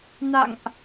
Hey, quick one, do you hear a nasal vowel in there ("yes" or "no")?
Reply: no